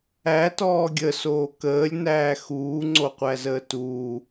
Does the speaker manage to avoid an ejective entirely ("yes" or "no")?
yes